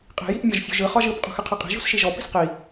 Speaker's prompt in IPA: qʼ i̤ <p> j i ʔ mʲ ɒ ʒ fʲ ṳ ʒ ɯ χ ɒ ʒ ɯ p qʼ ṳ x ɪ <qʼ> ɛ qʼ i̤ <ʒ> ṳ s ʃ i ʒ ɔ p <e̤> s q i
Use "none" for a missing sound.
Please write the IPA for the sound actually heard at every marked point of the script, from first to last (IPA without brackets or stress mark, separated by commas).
none, qʰ, ʒ, i̤